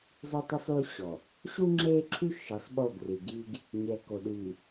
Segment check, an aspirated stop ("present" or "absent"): present